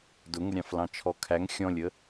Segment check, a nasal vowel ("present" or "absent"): present